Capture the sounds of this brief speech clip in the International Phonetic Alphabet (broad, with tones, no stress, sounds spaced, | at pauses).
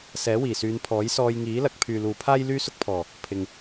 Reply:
s ɛː˨˥ w iː˨˩ s yː˨˧ n pʰ ɔː˨˥ j s ɔː˧ j ŋ iː˨˥ l ɐ˧ k̚ pʰ yː˨ l uː˨ pʰ aː˥ j l yː˥ s ʊ˥ k̚ pʰ ɔː˨˩ | pʰ ɪ˨ ŋ